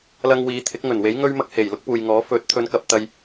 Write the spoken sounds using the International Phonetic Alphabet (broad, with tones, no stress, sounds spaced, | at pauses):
l ɐ˧ ŋ w iː˨˧ t̪ʰ ɪ˨˥ k̚ ŋ ɵ˨˩ n w e˨˥ j ŋ ɵ˥ ɥ m ɐ˥ k̚ h e˨˩ j l ʊ˥ k̚ p uː˨ j ŋ ɔː˨˥ f ɵ˨˥ t̚ t̪ʰ ɵ˨˧ n k ɐ˨ p̚ t̪ ɐ˧ j